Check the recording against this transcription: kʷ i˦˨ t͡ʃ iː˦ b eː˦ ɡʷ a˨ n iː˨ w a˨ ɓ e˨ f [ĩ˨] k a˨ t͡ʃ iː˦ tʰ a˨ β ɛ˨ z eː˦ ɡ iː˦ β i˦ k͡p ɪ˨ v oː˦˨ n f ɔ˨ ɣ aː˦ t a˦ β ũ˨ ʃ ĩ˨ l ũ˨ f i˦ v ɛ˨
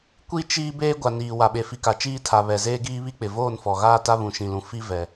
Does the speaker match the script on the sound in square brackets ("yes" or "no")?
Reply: no